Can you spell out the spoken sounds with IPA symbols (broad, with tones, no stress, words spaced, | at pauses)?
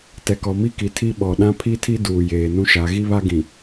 tɛ˨kɔ˨mi˦ki˨ tʰi˦ɓɔ˨ ɗã˦pʰi˦tʰi˦ duː˨jeː˨nũ˦ʃa˨˦ ɣi˦βa˦ɡĩ˨